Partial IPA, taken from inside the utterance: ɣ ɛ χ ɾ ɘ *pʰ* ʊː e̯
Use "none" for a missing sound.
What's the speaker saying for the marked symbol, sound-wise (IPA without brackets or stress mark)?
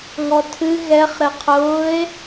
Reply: qʰ